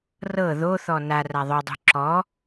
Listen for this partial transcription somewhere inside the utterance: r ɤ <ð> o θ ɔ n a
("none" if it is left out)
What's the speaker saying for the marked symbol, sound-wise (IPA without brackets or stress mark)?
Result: ð